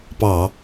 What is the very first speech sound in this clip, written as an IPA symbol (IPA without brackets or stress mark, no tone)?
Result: p